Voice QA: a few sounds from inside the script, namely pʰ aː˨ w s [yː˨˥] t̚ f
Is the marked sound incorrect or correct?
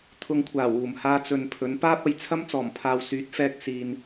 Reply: correct